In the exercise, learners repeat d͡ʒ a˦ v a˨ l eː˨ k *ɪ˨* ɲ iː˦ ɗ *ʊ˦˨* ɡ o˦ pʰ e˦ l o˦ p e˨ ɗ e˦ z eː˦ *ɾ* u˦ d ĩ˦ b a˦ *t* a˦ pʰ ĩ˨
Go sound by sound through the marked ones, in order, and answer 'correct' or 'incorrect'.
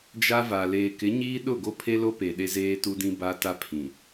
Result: incorrect: ɪ˨˦, correct, incorrect: t, correct

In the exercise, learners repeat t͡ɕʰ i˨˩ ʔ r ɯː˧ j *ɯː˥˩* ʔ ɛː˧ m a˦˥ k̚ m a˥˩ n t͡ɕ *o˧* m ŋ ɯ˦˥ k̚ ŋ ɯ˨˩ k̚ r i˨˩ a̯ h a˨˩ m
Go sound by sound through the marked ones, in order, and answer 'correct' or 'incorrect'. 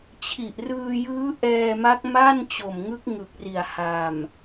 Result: incorrect: ɯː˦˥, incorrect: o˨˩

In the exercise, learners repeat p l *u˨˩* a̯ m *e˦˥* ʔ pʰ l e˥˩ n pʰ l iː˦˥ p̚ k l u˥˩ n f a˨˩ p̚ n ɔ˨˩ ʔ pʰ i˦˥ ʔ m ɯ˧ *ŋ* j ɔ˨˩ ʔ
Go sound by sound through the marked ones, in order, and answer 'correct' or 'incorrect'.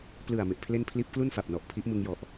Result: incorrect: ɯ˨˩, incorrect: e˨˩, correct

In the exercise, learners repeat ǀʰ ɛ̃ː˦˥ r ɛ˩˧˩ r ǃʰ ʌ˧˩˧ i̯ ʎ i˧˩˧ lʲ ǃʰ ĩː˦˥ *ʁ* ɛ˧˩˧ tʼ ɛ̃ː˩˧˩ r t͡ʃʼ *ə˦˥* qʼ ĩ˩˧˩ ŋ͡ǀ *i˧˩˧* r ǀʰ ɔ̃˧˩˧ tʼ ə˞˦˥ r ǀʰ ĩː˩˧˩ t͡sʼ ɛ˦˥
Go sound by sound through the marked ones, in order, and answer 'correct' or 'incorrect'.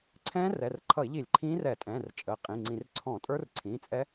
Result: incorrect: r, incorrect: ə˩˧˩, incorrect: ĩ˧˩˧

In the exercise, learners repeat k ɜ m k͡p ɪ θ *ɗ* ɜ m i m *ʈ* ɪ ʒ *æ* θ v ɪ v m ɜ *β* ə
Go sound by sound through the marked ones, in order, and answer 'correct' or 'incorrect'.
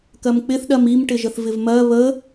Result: correct, correct, incorrect: ə, correct

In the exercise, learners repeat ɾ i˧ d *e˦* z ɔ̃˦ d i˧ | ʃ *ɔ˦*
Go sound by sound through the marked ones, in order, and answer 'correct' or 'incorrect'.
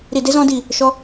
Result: correct, correct

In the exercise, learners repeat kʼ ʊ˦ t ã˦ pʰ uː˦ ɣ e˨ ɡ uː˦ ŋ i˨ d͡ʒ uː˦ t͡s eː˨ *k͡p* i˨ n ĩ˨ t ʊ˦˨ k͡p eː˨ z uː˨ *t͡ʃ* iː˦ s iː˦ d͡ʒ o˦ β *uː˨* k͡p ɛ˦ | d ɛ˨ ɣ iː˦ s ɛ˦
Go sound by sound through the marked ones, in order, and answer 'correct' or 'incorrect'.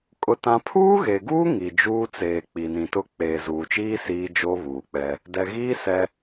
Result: correct, correct, correct

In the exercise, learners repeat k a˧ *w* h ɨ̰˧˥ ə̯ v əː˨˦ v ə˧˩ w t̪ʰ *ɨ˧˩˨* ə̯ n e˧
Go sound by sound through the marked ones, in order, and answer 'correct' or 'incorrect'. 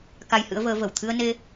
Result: incorrect: j, incorrect: ɨ˧

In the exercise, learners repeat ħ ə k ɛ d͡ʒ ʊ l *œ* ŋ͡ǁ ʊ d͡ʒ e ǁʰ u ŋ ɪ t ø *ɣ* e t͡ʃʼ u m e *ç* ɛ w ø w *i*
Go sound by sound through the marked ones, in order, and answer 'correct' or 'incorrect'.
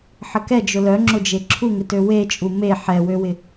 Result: correct, incorrect: w, incorrect: ħ, incorrect: ɪ

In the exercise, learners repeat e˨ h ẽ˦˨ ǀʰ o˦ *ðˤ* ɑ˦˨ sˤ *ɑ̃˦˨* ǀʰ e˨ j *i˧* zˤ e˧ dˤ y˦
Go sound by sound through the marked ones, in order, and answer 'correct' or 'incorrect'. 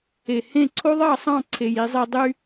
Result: correct, correct, correct

